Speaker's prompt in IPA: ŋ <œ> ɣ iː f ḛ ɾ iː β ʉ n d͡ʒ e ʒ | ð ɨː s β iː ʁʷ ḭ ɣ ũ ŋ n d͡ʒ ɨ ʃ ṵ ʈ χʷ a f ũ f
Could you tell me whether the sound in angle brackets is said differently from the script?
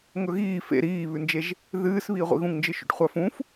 yes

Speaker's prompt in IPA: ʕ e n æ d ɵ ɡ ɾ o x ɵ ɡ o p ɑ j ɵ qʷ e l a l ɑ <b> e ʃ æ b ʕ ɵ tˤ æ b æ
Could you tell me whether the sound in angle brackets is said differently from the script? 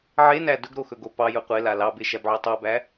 no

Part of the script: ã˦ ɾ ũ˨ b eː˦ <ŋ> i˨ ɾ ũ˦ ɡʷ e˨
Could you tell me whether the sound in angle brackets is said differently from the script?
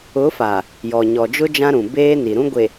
yes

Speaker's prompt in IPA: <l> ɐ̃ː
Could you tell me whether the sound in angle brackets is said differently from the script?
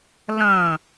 no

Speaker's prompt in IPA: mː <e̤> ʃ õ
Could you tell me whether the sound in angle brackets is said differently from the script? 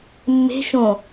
no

